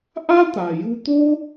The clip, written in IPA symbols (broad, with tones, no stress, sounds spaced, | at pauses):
ʔ a˥ t̪ a˩ j u˧ t̪ o˥